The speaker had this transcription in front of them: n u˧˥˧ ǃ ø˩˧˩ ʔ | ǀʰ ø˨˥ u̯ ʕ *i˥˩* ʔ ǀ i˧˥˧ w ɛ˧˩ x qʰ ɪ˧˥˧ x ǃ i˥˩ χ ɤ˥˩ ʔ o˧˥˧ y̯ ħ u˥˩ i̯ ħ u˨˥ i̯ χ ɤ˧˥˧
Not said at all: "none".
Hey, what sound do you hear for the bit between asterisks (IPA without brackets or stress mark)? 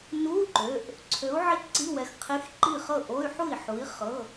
i˥˩